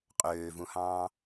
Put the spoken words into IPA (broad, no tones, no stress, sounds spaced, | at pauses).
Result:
qʼ øː v ũ h ɑ̃ː